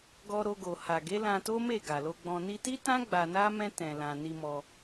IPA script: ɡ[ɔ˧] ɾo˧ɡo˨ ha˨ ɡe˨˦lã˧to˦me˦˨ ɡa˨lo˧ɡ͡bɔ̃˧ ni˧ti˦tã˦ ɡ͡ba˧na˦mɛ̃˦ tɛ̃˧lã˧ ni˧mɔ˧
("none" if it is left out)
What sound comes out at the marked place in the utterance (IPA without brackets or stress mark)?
ɔ˧